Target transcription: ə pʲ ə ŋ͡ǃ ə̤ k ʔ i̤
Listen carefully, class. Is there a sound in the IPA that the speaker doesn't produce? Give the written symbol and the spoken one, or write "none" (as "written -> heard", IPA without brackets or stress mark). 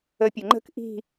none